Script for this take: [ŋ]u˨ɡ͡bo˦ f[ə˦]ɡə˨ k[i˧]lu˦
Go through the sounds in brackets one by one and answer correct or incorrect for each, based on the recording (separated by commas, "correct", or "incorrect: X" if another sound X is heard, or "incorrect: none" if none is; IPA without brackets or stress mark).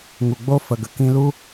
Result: correct, incorrect: ə˨, incorrect: ĩ˧